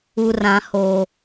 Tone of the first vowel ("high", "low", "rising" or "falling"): high